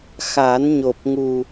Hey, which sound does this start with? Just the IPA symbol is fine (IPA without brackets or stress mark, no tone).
x